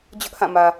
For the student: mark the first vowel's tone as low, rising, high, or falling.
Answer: high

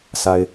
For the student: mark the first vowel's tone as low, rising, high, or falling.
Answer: high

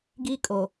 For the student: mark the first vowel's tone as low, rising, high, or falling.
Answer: high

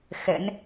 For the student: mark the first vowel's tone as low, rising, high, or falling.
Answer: rising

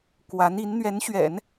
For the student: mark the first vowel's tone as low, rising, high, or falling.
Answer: rising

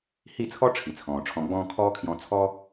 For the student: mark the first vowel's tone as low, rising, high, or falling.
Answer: falling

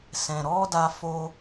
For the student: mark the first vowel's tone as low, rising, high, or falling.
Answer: low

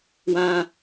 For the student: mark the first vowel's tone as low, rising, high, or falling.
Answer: high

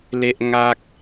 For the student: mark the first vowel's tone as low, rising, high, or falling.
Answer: high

